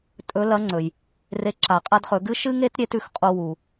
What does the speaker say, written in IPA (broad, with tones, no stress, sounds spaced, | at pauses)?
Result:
tʼ ɵ˧˥ l ɐ˧˥ ŋ͡ǀ ɵ˩ j | r e˧˥ ǁ a˩˧ qʼ a˥ d χ ɵ˩˧ ɡ ɨ˥ ʃ ɨ˥ ŋ e˥ t ɾʲ e˧˥ t ʉ˩˧ x qʼ o˧ w u˩